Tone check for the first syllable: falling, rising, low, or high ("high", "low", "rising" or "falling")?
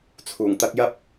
low